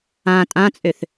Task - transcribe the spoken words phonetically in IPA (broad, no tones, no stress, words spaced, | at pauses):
ã tʼãt͡sʼøθ